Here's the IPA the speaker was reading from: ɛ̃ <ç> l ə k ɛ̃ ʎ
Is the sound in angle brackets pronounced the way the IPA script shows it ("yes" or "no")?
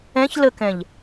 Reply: yes